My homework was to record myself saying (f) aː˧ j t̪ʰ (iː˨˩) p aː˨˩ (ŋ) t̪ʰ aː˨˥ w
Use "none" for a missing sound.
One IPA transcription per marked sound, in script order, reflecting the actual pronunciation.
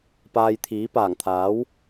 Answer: p, iː˨˥, ŋ

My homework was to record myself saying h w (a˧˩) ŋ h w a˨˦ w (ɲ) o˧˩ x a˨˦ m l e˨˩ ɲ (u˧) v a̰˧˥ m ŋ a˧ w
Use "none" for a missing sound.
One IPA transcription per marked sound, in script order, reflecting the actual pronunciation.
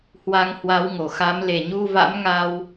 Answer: a˧, ŋ, u˧

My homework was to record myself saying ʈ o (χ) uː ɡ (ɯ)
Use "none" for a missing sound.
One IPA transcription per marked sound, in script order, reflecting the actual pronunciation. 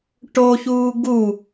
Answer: ç, u

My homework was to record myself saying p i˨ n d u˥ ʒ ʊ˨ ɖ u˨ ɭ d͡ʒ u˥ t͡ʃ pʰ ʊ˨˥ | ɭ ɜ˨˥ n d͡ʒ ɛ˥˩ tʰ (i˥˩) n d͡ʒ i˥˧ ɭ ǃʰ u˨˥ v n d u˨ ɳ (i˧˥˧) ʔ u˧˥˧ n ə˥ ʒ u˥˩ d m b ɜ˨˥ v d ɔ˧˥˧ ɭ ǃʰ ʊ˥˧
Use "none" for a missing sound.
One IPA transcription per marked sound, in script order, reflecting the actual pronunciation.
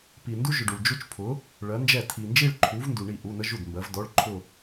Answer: i˨, i˥˩

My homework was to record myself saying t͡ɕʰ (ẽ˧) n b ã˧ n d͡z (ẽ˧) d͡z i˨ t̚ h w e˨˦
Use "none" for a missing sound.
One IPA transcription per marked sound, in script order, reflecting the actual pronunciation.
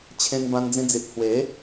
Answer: ẽ˧, ĩ˧

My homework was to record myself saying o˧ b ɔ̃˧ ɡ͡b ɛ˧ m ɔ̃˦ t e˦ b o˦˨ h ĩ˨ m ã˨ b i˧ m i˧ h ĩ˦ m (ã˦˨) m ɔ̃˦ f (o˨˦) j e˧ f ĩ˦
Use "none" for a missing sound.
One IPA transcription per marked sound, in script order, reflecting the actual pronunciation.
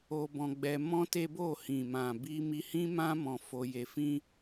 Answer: ã˦, o˧

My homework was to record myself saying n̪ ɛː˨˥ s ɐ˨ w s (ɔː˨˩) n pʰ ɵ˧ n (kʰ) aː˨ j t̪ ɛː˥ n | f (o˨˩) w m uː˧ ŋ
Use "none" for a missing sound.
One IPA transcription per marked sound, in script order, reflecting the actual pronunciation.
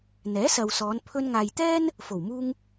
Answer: ɔː˨˧, ŋ, o˨˩

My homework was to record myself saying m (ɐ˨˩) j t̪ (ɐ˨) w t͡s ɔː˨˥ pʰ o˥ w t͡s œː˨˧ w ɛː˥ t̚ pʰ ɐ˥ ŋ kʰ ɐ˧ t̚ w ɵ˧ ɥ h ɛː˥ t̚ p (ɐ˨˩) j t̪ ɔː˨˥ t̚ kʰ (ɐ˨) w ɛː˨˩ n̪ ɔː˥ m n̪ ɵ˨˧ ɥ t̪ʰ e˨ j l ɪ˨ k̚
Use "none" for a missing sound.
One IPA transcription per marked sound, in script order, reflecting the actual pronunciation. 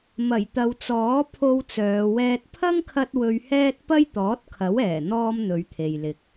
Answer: ɐ˨˩, ɐ˨, ɐ˥, ɐ˨˥

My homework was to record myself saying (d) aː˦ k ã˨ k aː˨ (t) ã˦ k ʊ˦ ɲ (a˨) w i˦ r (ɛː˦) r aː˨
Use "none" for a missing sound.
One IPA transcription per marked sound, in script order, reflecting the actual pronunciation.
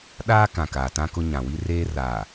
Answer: ɗ, t, ã˨, eː˦

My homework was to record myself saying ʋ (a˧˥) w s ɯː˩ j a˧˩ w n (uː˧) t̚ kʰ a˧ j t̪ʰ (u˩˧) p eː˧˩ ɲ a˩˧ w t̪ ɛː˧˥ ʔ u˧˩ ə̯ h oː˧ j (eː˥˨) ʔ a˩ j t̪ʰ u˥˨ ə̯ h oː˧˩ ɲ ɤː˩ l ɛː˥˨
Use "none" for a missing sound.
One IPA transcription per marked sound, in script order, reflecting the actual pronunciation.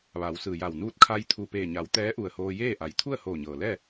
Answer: a˩˧, uː˧˥, u˧˩, eː˥˨

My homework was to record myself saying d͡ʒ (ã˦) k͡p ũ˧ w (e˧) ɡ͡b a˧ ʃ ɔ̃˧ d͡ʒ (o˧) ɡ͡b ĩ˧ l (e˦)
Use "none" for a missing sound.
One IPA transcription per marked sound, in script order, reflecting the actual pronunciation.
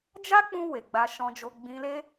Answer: a˦, e˨, o˧, e˦

